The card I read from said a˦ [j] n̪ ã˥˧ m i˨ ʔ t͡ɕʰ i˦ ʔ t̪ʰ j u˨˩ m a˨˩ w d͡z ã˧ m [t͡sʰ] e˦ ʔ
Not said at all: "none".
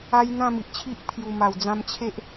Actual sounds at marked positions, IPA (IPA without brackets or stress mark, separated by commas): j, t͡ɕʰ